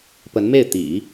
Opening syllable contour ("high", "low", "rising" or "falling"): rising